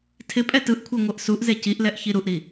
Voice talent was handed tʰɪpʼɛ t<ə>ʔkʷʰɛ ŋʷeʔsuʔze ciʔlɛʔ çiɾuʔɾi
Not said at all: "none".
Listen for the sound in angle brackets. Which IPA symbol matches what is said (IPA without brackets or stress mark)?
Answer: ɯ